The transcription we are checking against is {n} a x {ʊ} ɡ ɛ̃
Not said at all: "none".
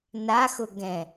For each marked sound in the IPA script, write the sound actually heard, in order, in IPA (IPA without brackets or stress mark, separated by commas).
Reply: n, ʊ